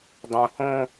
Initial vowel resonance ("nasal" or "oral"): nasal